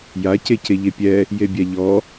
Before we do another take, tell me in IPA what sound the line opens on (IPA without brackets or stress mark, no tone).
j